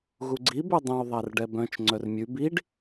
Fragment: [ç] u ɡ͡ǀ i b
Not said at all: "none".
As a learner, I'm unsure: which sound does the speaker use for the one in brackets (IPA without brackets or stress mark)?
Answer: ɣ